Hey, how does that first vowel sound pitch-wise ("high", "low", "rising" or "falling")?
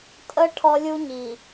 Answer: high